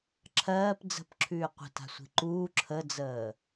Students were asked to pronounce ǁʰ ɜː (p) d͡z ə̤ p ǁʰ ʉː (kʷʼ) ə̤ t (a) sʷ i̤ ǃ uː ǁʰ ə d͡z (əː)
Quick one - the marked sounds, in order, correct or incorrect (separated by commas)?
correct, incorrect, incorrect, correct